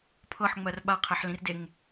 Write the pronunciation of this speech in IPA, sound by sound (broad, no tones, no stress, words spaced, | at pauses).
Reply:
pʰɤħŋ͡mɜr ɓaqʰɛħlĩrdeŋ